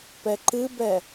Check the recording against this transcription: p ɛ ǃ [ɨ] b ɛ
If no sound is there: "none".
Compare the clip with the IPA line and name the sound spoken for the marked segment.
ɨ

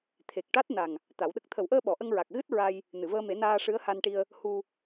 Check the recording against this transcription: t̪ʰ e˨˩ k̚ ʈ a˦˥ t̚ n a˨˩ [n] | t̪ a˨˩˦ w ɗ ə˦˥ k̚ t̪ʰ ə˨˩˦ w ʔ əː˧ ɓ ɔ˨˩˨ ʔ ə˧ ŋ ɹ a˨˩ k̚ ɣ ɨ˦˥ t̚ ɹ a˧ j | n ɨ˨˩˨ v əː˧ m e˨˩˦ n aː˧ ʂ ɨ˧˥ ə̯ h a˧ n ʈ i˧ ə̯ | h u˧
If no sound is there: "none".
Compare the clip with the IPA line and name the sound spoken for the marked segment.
ŋ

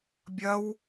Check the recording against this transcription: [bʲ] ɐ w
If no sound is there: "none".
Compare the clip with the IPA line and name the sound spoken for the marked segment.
bʲ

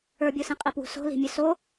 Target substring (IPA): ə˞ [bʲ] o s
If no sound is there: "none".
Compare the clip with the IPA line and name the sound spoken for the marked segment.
bʲ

